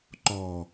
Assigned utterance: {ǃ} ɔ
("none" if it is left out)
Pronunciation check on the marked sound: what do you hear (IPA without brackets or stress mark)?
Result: ǃ